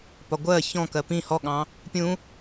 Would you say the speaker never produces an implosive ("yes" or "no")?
no